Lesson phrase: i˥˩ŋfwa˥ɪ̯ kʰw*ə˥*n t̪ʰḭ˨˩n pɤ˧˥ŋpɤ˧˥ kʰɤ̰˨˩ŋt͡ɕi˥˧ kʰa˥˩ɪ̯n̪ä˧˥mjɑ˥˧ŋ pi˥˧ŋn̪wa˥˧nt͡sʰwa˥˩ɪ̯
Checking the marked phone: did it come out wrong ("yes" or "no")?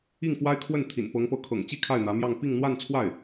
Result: yes